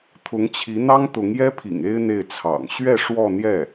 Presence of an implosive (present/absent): absent